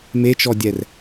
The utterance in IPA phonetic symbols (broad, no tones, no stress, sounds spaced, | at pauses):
m e t͡ʃ ɔ dʲ ɛ r